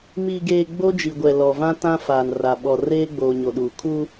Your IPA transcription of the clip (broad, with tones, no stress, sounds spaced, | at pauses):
m i˨ ɡ eː˨ ɡ͡b o˦ d͡ʒ i˨ ɡʷ ɛ˨ l ɔ˨ v ã˦ t ã˦ f aː˨ n r a˨ ɓ ɔ˨ r eː˦ ɡ͡b oː˨ ɲ o˨ ɗ uː˨ kʰ u˦